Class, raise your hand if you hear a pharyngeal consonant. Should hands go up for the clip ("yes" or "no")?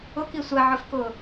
yes